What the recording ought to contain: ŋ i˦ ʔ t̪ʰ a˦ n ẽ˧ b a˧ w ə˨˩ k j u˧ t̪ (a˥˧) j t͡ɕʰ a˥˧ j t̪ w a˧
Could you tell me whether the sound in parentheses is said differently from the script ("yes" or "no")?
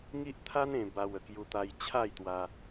yes